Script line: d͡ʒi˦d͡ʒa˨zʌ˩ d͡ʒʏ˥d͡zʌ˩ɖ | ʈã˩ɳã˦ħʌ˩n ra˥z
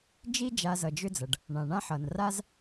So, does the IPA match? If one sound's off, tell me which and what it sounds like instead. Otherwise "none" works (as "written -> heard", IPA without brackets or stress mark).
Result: ʈ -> ɳ